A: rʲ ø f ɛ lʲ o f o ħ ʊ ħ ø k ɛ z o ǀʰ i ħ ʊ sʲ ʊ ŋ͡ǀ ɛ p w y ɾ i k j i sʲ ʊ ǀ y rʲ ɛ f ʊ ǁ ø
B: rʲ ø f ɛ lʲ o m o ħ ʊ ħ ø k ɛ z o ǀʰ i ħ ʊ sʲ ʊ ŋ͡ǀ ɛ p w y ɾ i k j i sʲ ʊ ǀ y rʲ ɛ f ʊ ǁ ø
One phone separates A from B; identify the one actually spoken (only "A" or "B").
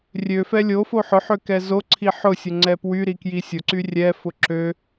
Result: A